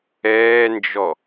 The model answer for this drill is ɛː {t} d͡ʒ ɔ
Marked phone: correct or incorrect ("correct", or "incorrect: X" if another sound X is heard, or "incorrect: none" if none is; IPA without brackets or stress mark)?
incorrect: n